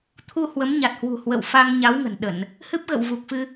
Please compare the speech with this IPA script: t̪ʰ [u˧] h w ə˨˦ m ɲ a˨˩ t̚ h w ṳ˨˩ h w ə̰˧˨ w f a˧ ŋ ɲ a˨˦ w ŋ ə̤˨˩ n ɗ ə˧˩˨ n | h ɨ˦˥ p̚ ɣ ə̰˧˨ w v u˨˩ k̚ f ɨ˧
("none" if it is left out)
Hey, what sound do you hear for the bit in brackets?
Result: u˧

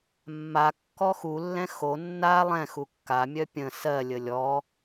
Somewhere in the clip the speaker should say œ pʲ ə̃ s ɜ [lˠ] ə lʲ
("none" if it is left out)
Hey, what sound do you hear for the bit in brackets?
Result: lʲ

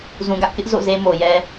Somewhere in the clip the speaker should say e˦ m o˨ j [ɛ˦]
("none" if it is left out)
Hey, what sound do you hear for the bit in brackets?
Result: ɛ˦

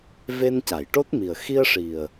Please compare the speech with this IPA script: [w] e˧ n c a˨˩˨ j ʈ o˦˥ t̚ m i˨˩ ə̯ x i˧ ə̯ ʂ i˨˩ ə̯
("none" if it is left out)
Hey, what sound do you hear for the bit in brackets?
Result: v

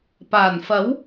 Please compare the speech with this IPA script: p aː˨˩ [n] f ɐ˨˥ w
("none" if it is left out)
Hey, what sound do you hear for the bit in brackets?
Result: n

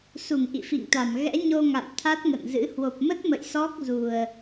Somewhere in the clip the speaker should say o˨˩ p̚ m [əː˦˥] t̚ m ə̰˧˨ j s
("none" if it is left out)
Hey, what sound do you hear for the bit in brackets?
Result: ə˦˥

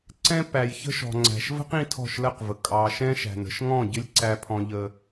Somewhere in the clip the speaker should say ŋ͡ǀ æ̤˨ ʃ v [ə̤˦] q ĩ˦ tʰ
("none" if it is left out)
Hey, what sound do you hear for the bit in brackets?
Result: ə̤˦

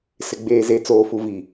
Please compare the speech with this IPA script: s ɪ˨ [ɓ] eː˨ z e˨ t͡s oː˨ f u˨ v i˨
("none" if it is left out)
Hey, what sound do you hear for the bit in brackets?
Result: ɡ͡b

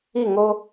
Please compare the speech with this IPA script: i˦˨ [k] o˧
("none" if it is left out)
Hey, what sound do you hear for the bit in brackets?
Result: ŋ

